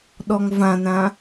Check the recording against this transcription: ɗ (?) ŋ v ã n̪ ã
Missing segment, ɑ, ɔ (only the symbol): ɔ